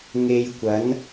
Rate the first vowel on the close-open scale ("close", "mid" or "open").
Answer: mid